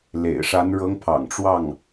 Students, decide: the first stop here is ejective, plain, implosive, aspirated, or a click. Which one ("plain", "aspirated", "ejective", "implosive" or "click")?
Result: aspirated